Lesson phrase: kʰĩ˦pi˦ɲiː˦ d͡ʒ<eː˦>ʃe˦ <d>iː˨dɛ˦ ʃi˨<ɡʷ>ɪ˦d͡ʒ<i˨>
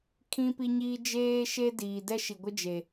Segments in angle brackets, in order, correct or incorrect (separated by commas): correct, correct, correct, incorrect